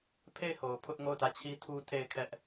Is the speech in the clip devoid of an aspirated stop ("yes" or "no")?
no